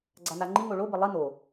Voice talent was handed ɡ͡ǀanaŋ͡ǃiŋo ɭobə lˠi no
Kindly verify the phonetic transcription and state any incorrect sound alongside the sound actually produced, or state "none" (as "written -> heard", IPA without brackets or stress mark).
none